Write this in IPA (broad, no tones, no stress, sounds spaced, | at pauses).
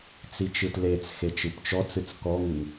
t͡s i t͡ʃ ɯ t l e t͡s x e t͡ʃ ɯ p t͡ʃ ɔ t͡s ɨ t͡s k ɔ ŋ ɨ ŋ